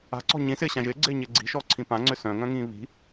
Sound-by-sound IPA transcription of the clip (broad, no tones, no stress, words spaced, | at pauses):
a̤ǀɔ̤ ɲĩsɪːɕã ʒɪːɡ͡ǀɪːɲɪː ɡ͡ǀi̤ʃɔǀʰĩ pãŋ͡ǀʏ sœ̃ŋœ̃ŋĩː βi̤